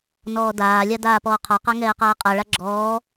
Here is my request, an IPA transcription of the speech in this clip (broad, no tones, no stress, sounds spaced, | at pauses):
n ɔː d aː lʲ a d aː p ɔː qʰ ɒ q a ŋ ɛː q aː qʼ a ɭ a ɡ͡ǁ ɔː